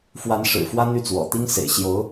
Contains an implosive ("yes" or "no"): no